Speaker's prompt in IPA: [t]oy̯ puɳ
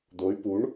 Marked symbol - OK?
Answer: no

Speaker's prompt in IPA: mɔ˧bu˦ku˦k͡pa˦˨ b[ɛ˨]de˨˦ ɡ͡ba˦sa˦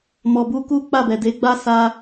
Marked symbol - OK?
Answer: yes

